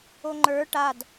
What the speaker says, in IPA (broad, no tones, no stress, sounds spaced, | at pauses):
o ŋ͡ǃ ə˞ ʈ a d